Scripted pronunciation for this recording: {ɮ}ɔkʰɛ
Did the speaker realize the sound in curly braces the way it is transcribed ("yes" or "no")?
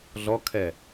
yes